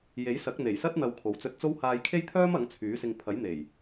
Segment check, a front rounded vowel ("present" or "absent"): present